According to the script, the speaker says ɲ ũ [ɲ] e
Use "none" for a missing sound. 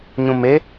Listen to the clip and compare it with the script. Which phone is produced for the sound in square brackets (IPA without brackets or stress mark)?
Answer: m